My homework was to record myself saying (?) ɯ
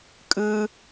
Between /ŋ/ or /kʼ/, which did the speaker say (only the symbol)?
kʼ